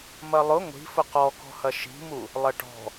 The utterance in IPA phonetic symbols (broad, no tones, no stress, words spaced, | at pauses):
mɐlˠʊ ŋʷi̤fʊ qɔkɔ̤hɐ ʃi̤mu | lˠɐʈɔ̤